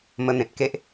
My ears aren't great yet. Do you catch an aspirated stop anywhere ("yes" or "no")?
no